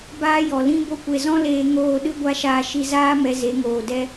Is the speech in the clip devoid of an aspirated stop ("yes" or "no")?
yes